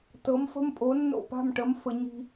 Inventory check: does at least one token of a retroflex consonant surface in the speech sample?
yes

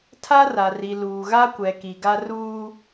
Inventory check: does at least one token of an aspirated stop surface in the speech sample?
yes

